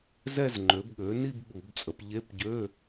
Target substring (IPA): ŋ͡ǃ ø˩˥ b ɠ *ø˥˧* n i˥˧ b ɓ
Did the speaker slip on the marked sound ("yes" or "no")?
yes